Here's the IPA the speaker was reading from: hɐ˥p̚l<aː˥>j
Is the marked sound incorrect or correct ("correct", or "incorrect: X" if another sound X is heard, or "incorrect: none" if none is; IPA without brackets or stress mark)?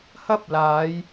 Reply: incorrect: aː˨˧